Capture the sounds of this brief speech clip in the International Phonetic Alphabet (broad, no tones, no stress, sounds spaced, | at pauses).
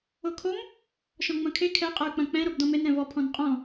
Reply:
o kʰ o m | ʃ ɔ̃ ŋ͡m ɐ̃ kʰ e kʰ ɛ qʼ ʌ y̯ k͡p ɐ̃ k͡p ɛ̃ ɾ o b d ɔ̃ m e n ɾ ɛ̃ v ɔ pʰ ɔ̃ n qʼ ɔ̃